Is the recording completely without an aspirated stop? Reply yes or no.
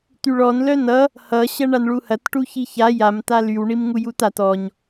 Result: yes